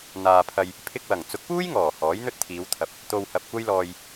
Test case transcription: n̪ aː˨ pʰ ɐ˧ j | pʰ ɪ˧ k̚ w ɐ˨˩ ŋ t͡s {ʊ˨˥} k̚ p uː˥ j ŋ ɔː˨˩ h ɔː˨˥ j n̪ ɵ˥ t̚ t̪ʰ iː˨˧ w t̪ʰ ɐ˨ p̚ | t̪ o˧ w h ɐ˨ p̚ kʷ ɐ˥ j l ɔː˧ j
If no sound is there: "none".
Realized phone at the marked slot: ʊ˨˥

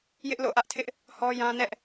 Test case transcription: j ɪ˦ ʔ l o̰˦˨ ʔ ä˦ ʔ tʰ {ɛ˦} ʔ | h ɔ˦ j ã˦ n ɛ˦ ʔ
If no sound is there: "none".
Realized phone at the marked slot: ɪ˦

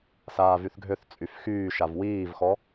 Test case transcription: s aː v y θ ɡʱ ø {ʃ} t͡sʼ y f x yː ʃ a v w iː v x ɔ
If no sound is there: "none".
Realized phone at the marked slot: θ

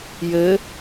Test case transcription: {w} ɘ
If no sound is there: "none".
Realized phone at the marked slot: j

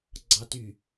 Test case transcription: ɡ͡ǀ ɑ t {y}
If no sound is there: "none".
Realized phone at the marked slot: y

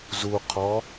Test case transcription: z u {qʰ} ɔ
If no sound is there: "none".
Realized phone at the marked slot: qʰ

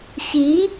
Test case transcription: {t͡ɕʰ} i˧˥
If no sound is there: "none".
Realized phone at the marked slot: ɕ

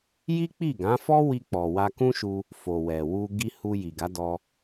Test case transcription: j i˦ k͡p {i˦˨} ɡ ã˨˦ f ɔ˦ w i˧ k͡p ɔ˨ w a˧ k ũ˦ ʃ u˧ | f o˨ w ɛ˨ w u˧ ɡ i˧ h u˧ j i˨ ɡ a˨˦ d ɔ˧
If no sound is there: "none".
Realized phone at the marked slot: i˦˨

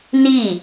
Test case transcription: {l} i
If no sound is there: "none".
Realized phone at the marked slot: n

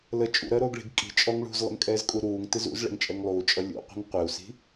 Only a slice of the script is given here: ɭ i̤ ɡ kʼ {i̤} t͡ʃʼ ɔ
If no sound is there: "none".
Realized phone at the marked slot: i̤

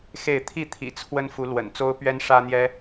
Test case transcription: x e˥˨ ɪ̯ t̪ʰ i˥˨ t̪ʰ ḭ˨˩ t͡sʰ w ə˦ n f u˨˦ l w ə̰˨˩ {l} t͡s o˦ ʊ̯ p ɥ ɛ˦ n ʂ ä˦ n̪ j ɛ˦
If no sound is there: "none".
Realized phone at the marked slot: n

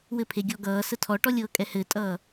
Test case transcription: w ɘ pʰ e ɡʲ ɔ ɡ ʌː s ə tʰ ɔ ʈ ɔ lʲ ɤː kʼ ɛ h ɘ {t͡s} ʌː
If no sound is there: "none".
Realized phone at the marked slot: tʼ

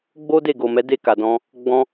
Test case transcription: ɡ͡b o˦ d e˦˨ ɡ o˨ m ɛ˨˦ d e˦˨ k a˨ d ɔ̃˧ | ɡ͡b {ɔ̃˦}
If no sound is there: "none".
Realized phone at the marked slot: ɔ̃˦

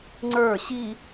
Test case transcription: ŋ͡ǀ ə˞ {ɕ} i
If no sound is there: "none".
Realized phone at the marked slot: ɕ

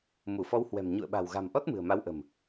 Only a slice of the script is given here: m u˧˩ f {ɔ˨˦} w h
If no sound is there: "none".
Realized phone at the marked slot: ɔ˨˦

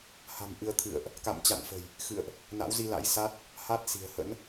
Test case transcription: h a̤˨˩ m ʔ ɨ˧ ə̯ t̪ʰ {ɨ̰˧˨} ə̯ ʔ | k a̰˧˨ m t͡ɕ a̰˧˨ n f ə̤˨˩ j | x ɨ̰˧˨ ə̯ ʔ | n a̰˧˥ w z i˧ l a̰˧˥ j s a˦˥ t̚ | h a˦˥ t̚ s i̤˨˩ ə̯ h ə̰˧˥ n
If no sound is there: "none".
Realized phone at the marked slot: ɨ̰˧˨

